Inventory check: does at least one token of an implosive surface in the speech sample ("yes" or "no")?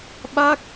yes